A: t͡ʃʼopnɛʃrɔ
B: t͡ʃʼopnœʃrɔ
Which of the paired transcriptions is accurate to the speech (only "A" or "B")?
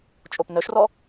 B